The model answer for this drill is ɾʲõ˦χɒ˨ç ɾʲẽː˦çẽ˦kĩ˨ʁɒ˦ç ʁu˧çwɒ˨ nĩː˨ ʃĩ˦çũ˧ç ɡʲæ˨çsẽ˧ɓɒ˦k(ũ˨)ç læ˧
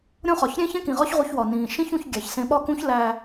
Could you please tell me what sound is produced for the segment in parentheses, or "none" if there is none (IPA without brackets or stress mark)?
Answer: ũ˦